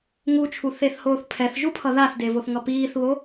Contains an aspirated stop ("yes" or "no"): yes